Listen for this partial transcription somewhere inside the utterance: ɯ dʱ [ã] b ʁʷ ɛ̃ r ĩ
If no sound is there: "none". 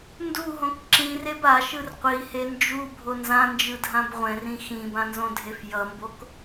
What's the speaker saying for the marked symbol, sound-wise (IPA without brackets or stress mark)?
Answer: ã